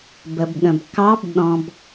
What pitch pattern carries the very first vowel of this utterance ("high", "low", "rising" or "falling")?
low